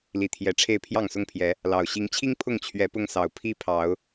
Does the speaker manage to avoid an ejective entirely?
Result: yes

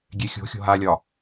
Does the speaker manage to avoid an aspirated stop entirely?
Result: yes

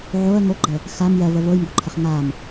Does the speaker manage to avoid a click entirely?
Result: no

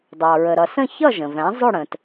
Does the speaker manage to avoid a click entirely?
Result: yes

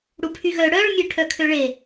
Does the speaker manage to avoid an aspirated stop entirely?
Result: no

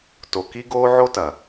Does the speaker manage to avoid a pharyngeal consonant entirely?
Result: no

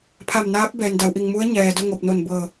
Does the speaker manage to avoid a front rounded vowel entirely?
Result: yes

